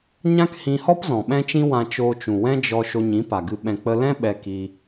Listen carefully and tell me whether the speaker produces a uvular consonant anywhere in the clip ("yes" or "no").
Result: no